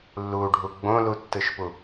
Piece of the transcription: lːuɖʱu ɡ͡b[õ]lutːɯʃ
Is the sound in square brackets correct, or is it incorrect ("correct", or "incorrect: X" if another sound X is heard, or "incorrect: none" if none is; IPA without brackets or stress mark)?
correct